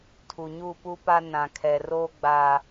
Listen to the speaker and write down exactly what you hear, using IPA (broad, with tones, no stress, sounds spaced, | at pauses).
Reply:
tʰ u˨ ɲ u˦˨ p u˦ p a˦ n ã˨ kʰ ɛ˨ r oː˦ ɡ͡b a˦